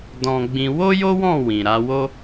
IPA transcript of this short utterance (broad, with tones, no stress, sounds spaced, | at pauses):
d ɔ̃˧ ɡ͡b ĩ˧ w o˦ j o˦ w ɔ̃˦˨ w ĩ˨ ɾ a˨˦ w o˦